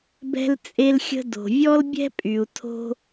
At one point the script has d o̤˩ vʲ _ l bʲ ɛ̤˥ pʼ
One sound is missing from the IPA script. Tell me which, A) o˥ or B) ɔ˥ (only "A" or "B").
B